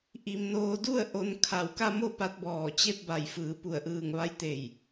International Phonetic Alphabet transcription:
ʔ i˧ m n oː˧ d u˥˨ ə̯ ʔ o˧ n kʰ a˧˩ w k a˥˨ m o˥˨ p a˧ t̚ b ɔː˧˩ t͡ɕ e˥˨ p̚ b a˧˩ j f ɯː˩˧ p u˧˩ ə̯ ʔ ɯː˧˩ ŋ ʋ a˧˥ j t̪ e˧˩ j

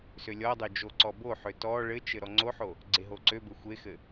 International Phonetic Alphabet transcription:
s ø lʲ ɔ dˤ ø d͡ʒ o ǀ ɔ b o ħ ø t ɔ ɭ ɘ t͡ʃ ɘ ɾ ɔ ŋ͡ǀ o ħ o | ɡ͡ǀ e ɦ o ǀ ø b ɘ xʷ e x ɘ

